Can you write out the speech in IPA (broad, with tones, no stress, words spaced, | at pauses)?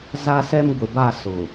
za˦sɛ˦m ɡʷɪ˨ba˦˨sʊ˨